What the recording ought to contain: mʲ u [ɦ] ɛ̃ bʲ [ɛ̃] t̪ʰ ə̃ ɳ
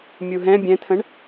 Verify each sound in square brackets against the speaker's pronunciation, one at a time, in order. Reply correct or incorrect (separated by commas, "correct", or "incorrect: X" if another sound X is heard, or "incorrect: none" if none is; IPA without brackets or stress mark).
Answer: correct, correct